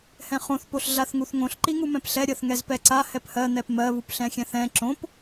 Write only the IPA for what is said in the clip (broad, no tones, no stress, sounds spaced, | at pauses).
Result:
h ɛ̃ χ õ θ p o ɬ ɮ a θ ŋ u θ ŋ õ ɬ ǃ i ŋ u m ɛ̃ p ɬ ɛ ɾʲ ɜ θ ŋ ɛ z p ɛ ǀ a h ɛ p h ɜ n̪ ɛ p m ɜ β u p ɬ ɛ̃ xʲ ɛ̃ θ ɛ̃ ǁ õ p